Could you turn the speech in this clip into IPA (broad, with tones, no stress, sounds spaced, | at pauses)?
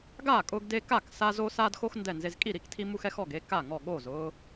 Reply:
ɡ aː˥˩ kʼ ʊː˦ ɡ d e˦ k a˥˩ k s a˦ z o˦ s aː˦ d x o˦ x n d ɛ˥˩ n z e˦ z kʼ i˥˩ ɾ i˥˩ k tʰ i˦ m u˦ x ɛ˦ x ɔ˥˩ ɡ e˦ k a˥˩ ŋ ɔ˥˩ ɠ oː˥˩ z ʊː˦